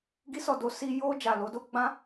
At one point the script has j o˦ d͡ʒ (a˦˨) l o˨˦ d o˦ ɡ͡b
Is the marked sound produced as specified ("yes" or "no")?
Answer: yes